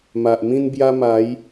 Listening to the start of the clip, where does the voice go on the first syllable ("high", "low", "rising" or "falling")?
low